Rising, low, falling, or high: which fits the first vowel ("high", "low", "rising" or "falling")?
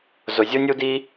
low